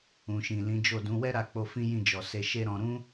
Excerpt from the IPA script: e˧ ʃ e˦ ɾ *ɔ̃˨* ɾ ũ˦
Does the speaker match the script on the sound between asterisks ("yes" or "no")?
no